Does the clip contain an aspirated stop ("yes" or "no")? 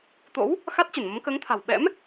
yes